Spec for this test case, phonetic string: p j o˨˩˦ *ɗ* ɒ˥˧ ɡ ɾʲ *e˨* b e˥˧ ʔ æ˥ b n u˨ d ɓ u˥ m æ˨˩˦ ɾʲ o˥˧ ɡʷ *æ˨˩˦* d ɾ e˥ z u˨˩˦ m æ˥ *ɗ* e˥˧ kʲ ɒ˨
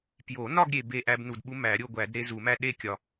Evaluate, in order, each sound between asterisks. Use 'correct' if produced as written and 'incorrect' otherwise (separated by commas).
incorrect, correct, correct, correct